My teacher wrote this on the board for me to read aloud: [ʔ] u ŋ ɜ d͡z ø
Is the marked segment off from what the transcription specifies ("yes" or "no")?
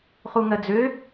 yes